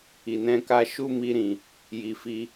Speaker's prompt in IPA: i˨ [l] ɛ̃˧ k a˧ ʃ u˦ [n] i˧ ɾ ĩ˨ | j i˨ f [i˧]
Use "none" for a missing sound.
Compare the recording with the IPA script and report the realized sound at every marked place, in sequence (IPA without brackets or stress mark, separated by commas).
n, m, i˧